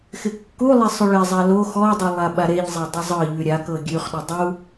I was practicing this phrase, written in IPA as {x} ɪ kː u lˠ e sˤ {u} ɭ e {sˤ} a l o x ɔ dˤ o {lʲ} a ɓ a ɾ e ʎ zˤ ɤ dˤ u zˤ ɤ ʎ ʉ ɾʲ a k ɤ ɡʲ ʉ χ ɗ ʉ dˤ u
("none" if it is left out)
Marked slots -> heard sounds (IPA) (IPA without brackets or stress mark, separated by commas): x, ʉ, zˤ, lˠ